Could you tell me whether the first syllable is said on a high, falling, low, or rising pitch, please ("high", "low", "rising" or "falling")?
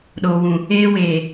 low